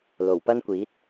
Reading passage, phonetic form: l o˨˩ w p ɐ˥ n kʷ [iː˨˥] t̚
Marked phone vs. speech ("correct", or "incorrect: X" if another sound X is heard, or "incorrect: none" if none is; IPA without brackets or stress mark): correct